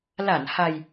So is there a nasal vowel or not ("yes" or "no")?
no